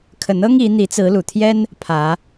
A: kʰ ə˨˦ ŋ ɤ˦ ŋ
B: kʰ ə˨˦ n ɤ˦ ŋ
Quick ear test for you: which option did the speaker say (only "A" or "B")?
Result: B